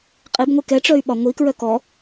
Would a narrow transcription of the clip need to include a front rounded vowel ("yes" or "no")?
yes